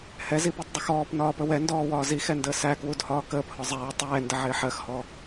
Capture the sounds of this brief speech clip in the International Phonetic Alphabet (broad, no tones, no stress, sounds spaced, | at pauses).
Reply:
h ɛ z i p u tˤ dˤ ɪ x ɔː p n ɒː p ə w ɛ n d ɔː w ɒː z i x ɛ n d əː s æ k w u d h ɒː k əː p h ɔ zˤ ɛː tˤ ɛː n d ə ʕ ɪː ħ ɜ x h ɔ